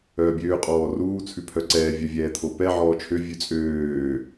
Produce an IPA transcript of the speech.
œːbʲøː qʼɔːruː t͡sʰʉpʰœǀɛː vʲœvʲɛːt̪ʰopɛ ʕɔːt͡ʃʰø vʲʉt͡sʼøː

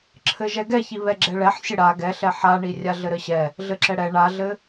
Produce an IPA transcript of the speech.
ǁʰɘʒɛɡɛçi βɛɡ͡ǁɛɭɛħ sʲɘɽa ɡɛɬɛ ħaɳi rʲaɮɘɾɘɕɛ | ɮɘǁɛɽɛ ɳaɮɘ

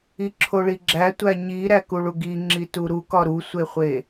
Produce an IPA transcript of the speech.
iǁʰoɭiɡ͡ǁæ tʷæɲiɾæ kuɭuɡi ŋ͡ǁituɾukɒ ɾusʷeχʷe

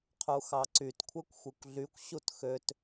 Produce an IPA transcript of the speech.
qʰuxɑǀyt kʷʰɛkʷxʷekʷɮykʷ ɕutxøt

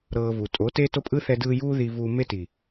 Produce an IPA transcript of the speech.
ɾɤː˧vu˨ tʼo˨˦teː˦to˦pʼɯ˦ θɛ˧dɯː˧ juː˦ ði˧vuː˧ me˧ti˨

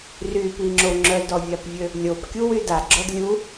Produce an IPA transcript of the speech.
rypiŋ͡ǁo ŋ͡ǁœdɔvʲapvʲø | lʲopkʲuwy daɡ͡ǁɔd lʲu

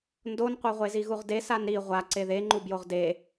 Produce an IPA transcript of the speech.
ndonqʷɛʁʷezi ɣuʁde sanɾi ʁʷa ǀeðeŋ͡ǃubjoʁ de

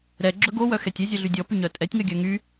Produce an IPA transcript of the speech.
ɾɛɡ͡ǁɵ ɡowœxɛtʲ ɛzʲœɮy dʲɔpyɲœ tʼɛtʲŋœɡʲœ ŋy

